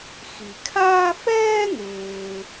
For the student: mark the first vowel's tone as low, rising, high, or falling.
low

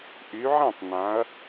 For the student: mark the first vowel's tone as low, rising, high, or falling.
rising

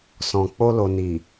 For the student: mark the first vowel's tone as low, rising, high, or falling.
low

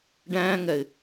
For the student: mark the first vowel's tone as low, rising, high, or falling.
high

